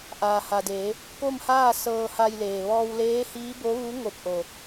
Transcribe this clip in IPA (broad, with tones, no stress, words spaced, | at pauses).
ʔaː˩ha˩deː˩˧ | ko˥˨mhaː˥˨ sɤː˧ha˧jleː˩ ʋɔː˧wleː˧˥hiː˧˥ bo˧˥ʋu˧˥ ŋo˧˩p̚ʔo˩